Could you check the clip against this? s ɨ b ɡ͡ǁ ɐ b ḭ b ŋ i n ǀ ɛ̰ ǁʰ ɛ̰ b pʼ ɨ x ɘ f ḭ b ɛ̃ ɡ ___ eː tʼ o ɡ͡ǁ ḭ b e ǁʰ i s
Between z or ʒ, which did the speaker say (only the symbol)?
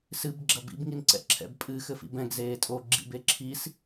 z